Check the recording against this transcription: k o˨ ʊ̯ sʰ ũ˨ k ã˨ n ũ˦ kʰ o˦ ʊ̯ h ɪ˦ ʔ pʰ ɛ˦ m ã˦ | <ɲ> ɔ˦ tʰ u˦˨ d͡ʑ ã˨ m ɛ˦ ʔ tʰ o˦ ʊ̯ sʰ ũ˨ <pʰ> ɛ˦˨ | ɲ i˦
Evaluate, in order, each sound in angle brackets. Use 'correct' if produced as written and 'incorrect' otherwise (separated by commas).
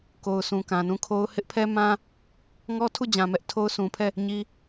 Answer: incorrect, correct